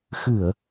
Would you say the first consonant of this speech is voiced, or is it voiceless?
voiceless